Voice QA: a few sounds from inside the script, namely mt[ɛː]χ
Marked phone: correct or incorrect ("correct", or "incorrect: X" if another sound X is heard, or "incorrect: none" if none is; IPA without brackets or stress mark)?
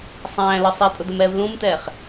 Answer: correct